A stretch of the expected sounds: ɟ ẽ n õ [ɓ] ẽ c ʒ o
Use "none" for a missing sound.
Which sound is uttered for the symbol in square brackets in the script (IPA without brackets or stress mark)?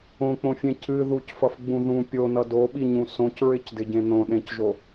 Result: ɗ